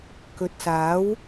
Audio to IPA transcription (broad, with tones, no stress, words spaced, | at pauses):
kɵ˨t̚saː˨˥w